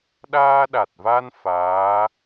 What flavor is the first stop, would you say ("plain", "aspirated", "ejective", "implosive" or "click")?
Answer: implosive